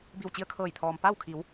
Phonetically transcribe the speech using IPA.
b i˧˩ w t͡ɕ i˧ ə̯ kʰ ɤː˧˩ j t̪ʰ ɔː˩ m p a˥˨ w kʰ i˩˧ w

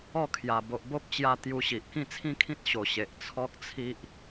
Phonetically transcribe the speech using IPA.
ɔ˥˧ kʰ j a˨˩ b o˨ ʔ b o˦ p̚ t͡ɕ j a˧ t̪ j u˧ ɕ i˨ ʔ k ĩ˥˧ t͡sʰ ĩ˦ kʰ ĩ˦ t̚ ɕ o˨˩ ɕ e˨ ʔ t͡sʰ ɔ˦ k̚ t͡sʰ i˦ ʔ

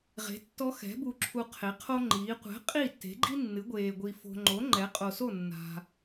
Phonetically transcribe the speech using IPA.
ʁ e̤˩˥ tː ɔ˧˥ x ɛ̤˩˥ b u˨ ǁʰ u˨ qʰ e˩˥ qʰ o˥ ŋ͡ǃ iː˩˥ qʷ ɛ̤˩˥ qʼ i˥˩ tː e̤˩˥ ɡ͡ǃ i˥ nː ɨ˩˥ ɡʷ eː˨ ɡʷ i˨ f o̤˨ ŋ͡ǃ o˩˥ ŋ͡ǃ ɛ˩˥ qʼ o˨ s o˥˩ nː a̤˨

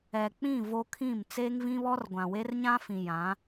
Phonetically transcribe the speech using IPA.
ɛ˨ k͡p ĩ˦˨ v o˦ kʰ ĩ˦˨ m t͡s eː˦ ŋ v ĩ˦ β ɔ˦ r ɡʷ ã˨ w e˦ r ɲ ã˦ f ĩ˨ j ã˨˦

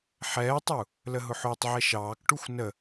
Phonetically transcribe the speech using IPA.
ħ ɛː tˤ u | l ə ɦ ʊ ħ ʊː tˤ ʕ ɛ ʃ ɑː k ʈ u xʷ n ə

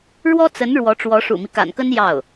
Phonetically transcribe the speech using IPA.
ɻ w ɔ˥ t͡s ə˧˥ n ɻ w ɔ˧˥ ʈ͡ʂ w ɔ˧˥ ʂ ṵ˨˩ m i˦ k a̰˨˩ n k ə˥ n j ɑ˥˩ ʊ̯

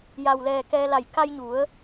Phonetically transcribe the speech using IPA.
j a˩ w l ɛː˩ k ɛː˧ l a˧˩ j k a˧ j ɲ u˩˧ ə̯

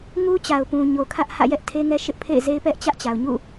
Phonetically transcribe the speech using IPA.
ŋ u˦ t͡ɕ a˨ ʊ̯ p ũ˨ ɲ o˨ kʰ ä˦ ʔ h ä̰˦˨ j ɛ˦ ʔ tʰ e˦ ŋ ɛ˦ ʃ ɪ˦ ʔ pʰ ḛ˦˨ ɪ̯ z e˦ ɪ̯ p ɛ˦ ʔ t͡ɕ ä˦ ʔ t͡ɕ a˨ ʊ̯ ɲ ṵ˦˨

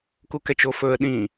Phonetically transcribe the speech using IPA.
k u k ɛ t͡ʃ o f ɵ ə̯ ɗ ĩ

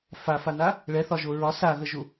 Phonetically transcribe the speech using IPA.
f a f a n a | ɭ ɛ θ ɒ ʒ o ɹ ɒ s a ɣ ə ʒ u

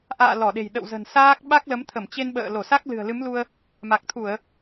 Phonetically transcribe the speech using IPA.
ʔ a̰ː˧˨ l ɔ˧˩ ɗ e̤˨˩ j ɗ ə̰˧˨ w z ə̤˨˩ n s aː˦˥ k̚ ɓ a˦˥ k̚ l ə˨˦ m t̪ʰ ə˧˩ m t͡ɕ e˧ n ɓ ə̰ː˧˨ l o˧˩ s a˦˥ k̚ l ɨ̤˨˩ ə̯ l ɨ˨˦ m l u˧ ə̯ | m a˨˩ k̚ t̪ʰ u˧˩˨ ə̯

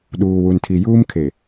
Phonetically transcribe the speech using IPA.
ɗ uː˨ w u˨ n tʰ i˨ j uː˦ m kʰ e˨

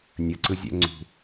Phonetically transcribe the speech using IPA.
nʲ ə ǀ ɯ zʲ ɛ̰ ŋ͡ǀ ṳ

